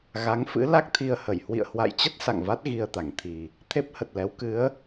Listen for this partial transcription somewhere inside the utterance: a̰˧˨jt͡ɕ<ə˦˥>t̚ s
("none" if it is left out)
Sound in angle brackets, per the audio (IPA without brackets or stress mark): ə˦˥